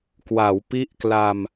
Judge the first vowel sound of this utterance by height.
low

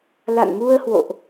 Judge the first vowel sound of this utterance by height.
low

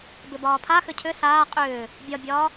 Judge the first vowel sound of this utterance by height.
high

